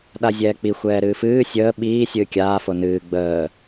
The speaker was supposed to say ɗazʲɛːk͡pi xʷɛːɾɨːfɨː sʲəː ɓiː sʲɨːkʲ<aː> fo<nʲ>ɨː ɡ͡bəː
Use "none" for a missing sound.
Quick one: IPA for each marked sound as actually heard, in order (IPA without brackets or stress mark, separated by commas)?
aː, n